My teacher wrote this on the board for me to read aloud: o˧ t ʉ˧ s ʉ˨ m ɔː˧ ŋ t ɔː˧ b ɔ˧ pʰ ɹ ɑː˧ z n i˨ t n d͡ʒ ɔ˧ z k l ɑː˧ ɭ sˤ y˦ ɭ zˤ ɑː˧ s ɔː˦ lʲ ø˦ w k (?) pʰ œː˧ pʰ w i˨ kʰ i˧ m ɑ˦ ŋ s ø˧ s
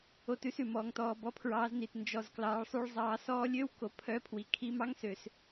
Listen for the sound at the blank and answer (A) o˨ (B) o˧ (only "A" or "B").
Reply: B